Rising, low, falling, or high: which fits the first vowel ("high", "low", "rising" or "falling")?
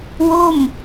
falling